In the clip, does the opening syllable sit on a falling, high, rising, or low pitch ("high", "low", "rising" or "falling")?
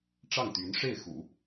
falling